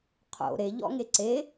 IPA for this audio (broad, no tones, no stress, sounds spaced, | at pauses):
qʰ o̰ ɾ e ʎ ɔ̰ ŋ e ǀ e